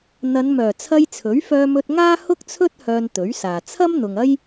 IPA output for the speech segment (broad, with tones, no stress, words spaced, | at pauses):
n̪ɐ˨˧nmœː˨˩t͡sʰɐ˧j t͡sʰɵ˨˥ɥfœː˧mɵ˧t̚ŋaː˥ hʊ˥k̚t͡sʰɵ˥t̚ hœː˧nt̪ɵ˨˥ɥsaː˨ t͡sʰɐ˥mn̪ʊ˨ŋɐ˥j